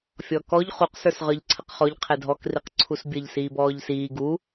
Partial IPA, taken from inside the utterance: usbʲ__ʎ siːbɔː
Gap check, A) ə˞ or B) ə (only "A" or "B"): B